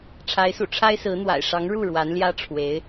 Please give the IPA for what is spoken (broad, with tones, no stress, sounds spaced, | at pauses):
ʈ͡ʂʰ a˧˥ ɪ̯ s ṵ˨˩ ʈ͡ʂʰ a˥ ɪ̯ s ɹ̩˧˥ n̪ w a̰˨˩ ɪ̯ ʂ ɑ˧˥ ŋ ɻ u˥˩ ɻ w a˧˥ n l j ä˥ ʈ͡ʂʰ w e˧˥ ɪ̯